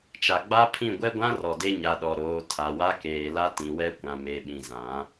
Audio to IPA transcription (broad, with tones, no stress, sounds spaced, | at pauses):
t͡ʃ a˨ ɡ͡b a˦ pʰ ĩ˦˨ ɡʷ ɛ˦ ɡʷ ã˦ r ɔ˨ d e˦ ɲ a˨ ɗ ɔ˨ ɾ oː˨˦ tʰ a˨ w a˦ k eː˨ l a˦ t ĩ˨ w ɛ˦ kʷ ã˨ m e˨ ɓ ĩ˨ z ã˨˦